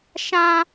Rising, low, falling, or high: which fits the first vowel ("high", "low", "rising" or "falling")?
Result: high